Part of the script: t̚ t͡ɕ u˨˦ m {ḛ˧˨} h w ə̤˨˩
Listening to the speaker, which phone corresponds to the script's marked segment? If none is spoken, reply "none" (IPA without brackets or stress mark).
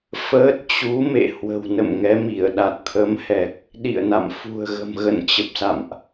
ḛ˧˨